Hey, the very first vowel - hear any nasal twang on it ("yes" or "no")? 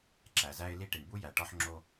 no